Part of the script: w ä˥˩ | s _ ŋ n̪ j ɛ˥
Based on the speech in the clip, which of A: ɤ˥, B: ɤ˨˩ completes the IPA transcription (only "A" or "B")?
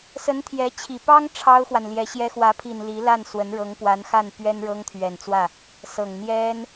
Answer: B